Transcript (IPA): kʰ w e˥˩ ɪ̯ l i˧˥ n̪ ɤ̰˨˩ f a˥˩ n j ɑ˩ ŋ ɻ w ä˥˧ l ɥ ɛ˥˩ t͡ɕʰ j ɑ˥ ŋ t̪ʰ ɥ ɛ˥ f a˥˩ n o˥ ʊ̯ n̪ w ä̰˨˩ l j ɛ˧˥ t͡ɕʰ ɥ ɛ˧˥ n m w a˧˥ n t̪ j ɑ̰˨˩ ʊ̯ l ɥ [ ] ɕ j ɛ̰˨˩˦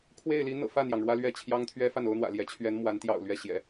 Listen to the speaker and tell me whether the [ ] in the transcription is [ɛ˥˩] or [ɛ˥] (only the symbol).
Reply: ɛ˥˩